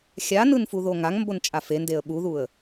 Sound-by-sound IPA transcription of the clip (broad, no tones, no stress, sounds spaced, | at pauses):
xʲ a n ɯ n f u ð o ŋ a ŋ m b o n t͡ʃʼ a f e n d e ə̯ ɓ u ð u ə̯